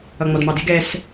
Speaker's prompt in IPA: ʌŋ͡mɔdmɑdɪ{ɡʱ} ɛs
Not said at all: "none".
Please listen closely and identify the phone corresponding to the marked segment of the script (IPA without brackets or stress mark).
ɡ